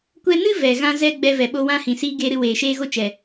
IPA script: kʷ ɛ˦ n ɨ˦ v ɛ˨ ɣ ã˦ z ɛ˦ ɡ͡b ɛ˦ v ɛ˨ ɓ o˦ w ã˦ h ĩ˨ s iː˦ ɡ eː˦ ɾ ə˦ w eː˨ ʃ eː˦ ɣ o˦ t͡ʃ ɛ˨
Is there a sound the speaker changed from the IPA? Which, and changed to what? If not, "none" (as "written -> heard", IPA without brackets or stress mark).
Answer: ə˦ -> ɨ˦